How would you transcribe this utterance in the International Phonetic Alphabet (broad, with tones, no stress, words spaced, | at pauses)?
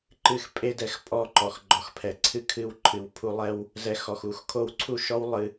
ǃɨ˧x pʼe˧dɛ˨x pʼɔ˦˨ǃɔ˨x ɡ͡ǃɔ˨x pʰɛ˨ ǀʰɨ˦ kʰɨ˧wǃʰɨ˨wpʰu˧ lˠɛ˦w | zɛ˧xɔ˨xu˨x kʰo˧wǀʰu˦˨ʃɔ˦w lˠɨ˧